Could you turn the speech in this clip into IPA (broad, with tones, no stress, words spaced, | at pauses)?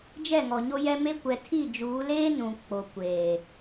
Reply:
d͡ʒɛ˦˨ŋɔ˨ ɲo˦jɛ˦me˦ kʷɛ˨ tʰi˦˨d͡ʒuː˨˦ leː˦ nũ˨ k͡po˨kʷeː˨